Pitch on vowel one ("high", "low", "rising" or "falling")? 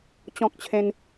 high